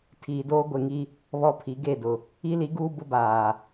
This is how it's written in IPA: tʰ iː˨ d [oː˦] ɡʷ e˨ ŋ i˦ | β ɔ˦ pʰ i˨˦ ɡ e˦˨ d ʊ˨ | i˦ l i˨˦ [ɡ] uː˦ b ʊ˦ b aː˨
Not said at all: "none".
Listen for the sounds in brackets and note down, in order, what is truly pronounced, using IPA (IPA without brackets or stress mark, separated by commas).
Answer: oː˦, ɡ